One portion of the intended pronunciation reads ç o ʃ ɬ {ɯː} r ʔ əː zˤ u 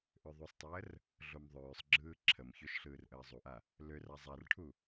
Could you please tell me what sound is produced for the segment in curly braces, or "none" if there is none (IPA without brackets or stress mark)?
ɯː